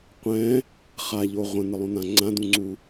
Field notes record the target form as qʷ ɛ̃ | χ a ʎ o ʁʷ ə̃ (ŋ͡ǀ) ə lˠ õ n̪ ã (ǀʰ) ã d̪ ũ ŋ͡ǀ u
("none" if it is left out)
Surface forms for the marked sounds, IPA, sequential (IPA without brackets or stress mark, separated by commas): n̪, ŋ͡ǀ